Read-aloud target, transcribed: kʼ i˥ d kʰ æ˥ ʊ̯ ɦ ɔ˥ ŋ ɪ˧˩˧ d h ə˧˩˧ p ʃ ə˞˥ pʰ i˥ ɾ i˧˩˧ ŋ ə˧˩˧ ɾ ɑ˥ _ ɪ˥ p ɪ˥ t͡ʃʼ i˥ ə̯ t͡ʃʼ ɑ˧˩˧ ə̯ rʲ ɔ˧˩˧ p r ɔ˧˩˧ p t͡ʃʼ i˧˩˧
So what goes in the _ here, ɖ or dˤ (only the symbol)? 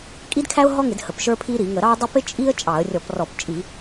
dˤ